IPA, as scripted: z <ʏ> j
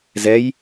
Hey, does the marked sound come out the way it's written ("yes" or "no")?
no